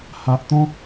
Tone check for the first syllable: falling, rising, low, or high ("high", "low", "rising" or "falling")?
low